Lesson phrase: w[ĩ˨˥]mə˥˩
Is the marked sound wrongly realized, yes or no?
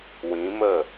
no